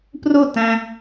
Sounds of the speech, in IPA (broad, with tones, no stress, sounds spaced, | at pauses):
p r u˦˨ t æ̃˧